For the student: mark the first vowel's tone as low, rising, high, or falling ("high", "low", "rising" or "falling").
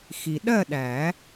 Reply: low